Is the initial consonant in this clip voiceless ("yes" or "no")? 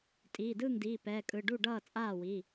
yes